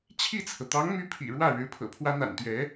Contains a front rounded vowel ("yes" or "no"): yes